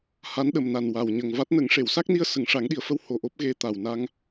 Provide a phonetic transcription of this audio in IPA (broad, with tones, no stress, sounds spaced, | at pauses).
h a˧˥ n ɗ ə˨˩ m n a˨˩ n w a˨˩ w ɲ ə˨˩ ŋ v a˦˥ t̚ n ə˨˩˦ ŋ ʂ e˨˩˨ w s a˦˥ k̚ n i˧ ə̯ s ə˨˩˦ ŋ ʂ a˨˩˦ ŋ ɗ i˨˩ ə̯ f ə˧ w h o˨˩ ʔ o˦˥ p̚ ɣ e˧ t̪ a˨˩ w n a˧ ŋ